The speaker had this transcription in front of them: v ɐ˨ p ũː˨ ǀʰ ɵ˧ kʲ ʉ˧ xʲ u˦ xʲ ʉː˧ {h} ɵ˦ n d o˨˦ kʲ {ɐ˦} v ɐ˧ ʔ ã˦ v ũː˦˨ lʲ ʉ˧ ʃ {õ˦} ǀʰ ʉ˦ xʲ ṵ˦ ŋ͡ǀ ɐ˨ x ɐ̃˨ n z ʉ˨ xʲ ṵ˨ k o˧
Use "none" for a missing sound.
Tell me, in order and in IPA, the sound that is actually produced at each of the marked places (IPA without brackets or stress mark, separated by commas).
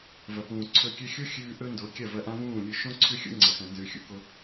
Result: ʔ, ɐ˦˨, õ˦